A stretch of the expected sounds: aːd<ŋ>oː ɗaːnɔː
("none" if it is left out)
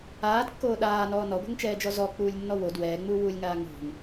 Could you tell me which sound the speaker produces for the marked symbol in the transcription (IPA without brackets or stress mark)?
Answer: kː